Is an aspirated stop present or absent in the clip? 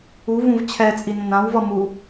present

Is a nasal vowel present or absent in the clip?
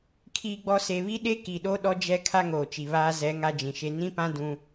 present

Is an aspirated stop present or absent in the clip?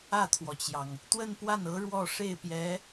present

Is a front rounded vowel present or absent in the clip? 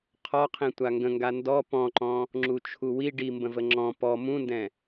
absent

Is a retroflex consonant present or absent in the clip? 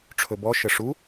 present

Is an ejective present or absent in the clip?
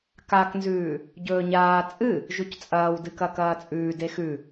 present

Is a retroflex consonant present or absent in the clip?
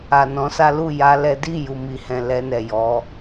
absent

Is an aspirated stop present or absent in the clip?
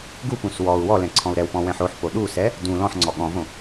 present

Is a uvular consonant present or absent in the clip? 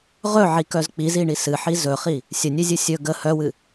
present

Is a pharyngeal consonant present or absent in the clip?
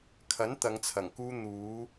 absent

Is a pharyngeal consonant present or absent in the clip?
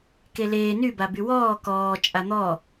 absent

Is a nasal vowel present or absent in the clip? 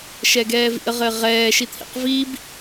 absent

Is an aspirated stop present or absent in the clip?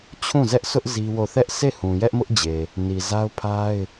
present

